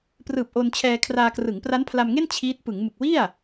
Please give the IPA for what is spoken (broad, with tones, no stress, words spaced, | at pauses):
prɯː˨˩p̚ ʔo˧nt͡ɕʰɛː˧kʰraː˧ krɯ˩˦ŋpra˦˥npʰla˧mŋe˥˩n t͡ɕʰiː˦˥t̚ pɯ˩˦ŋ mɯ˨˩k̚wi˥˩a̯